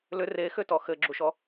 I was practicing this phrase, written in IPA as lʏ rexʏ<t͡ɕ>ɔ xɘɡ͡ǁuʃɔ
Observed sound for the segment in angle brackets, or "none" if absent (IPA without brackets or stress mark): t